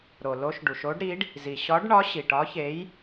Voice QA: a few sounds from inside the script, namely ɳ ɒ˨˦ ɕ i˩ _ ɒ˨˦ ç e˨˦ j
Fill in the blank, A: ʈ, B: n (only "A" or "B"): A